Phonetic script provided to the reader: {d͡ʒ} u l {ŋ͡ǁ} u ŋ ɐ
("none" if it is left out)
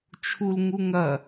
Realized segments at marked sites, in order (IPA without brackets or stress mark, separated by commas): t͡ʃʰ, ŋ